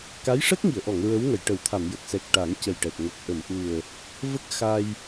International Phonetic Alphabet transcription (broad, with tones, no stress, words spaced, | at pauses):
ka˧˥jʂə˦˥k̚ŋi˨˩˨ə̯ʔɔ˨˩˨ŋ ɹə˧˥wŋə˨˩˨jʈə˨˩˦wt̪ʰa˨˩˨m jə˨˩k̚sɛ˨˩k̚ ʈa˨˩˦ŋcə˨˩jʈɛ˨˩t̚ ŋə˨˩k̚ʔə˨˩˨mʔu˨˩ə̯ | və˦˥k̚xa˧j